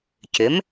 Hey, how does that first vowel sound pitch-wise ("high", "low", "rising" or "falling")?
rising